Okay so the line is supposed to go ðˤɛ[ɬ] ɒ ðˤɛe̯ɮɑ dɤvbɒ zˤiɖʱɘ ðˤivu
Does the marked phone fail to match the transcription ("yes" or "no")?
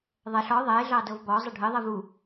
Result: no